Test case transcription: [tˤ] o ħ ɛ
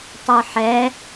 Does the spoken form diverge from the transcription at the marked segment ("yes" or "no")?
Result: no